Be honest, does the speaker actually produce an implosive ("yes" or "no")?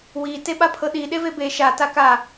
yes